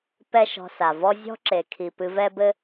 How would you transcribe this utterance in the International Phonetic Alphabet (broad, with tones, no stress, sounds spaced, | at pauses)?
p ɛ˦ ʃ ɔ̤˧ s a˨ v ɔ˦ zʲ ɔ̤˦ ǁ e˨ kʰ i˨ p ɨ˧ v ɛ˦ b ɘ˦